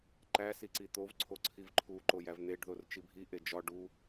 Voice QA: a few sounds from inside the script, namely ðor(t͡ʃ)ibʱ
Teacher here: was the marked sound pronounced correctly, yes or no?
yes